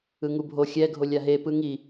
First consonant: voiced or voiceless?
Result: voiced